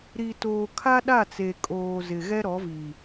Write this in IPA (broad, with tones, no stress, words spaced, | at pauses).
ɾi˨ toː˨ kʰa˦ɗa˦˨t͡se˨ kʼoː˨ zɪ˨ ɣɛ˦ɾɔ˨˦vi˨